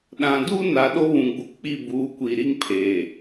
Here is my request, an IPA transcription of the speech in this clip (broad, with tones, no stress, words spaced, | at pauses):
ɗã˨du˦ na˨ ɗo˦βũ˨ɡ͡bu˨ k͡pi˦˨buː˨˦kʷi˨ɾi˦ŋ pʰeː˨